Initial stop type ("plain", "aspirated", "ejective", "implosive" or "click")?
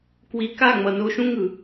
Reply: plain